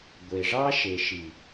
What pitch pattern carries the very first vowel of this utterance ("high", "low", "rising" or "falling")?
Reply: low